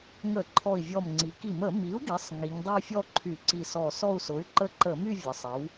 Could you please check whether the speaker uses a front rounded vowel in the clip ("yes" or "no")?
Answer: yes